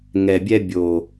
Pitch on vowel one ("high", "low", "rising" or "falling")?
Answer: low